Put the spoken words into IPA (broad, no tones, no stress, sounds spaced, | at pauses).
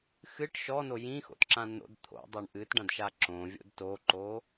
x ɨ ʈ ʃ ɔ n o j ĩ x o̰ t ǁ ã n o̰ d t̪ʰ o̰ dˤ o ɳ ʔ ɨ t ɖ ã d ʃ a ǁ õ vʲ o̰ d t o ǃ o